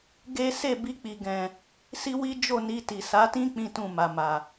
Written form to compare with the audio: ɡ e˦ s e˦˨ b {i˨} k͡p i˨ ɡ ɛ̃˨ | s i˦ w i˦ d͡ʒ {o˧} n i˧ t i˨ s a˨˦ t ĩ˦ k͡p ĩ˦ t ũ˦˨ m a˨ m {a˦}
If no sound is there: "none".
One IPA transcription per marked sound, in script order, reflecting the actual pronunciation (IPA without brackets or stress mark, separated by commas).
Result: i˧, o˦˨, a˨